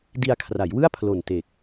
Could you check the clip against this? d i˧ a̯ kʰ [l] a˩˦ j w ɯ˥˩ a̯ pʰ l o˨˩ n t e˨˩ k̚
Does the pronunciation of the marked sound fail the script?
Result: yes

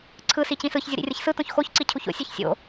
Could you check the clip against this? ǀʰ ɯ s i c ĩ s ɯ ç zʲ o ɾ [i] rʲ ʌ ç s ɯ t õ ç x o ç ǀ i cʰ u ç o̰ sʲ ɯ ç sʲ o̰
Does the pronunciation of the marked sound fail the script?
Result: yes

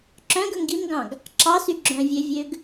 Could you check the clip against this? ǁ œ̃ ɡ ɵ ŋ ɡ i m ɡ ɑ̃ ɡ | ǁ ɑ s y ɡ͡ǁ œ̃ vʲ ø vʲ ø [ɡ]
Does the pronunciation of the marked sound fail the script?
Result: no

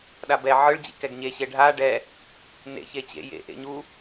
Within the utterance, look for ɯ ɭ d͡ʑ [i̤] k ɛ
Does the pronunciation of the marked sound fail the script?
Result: yes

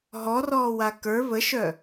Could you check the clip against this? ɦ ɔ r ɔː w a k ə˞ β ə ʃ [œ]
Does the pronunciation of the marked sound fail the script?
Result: no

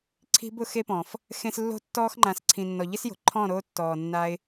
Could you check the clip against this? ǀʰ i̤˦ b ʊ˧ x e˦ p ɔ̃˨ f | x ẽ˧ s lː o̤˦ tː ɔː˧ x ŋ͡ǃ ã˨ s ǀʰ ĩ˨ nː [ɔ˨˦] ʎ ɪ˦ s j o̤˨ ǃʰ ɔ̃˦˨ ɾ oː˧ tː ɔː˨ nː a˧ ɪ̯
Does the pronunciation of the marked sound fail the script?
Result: yes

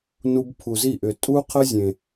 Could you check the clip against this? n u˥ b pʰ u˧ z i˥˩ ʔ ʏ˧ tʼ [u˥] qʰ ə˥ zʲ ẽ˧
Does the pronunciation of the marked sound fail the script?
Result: no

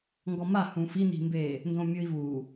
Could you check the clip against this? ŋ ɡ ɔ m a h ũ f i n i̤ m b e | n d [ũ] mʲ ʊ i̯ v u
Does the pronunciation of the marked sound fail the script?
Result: yes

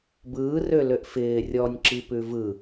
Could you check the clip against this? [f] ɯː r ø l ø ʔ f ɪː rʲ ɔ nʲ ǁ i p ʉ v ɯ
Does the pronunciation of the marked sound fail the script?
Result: yes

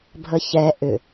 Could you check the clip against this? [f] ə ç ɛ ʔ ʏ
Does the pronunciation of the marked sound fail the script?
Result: yes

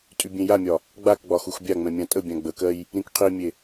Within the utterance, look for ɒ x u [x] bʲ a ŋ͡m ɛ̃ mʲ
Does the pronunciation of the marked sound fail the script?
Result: no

